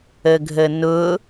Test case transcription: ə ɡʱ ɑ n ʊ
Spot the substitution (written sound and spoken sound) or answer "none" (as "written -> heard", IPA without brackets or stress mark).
ɑ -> ə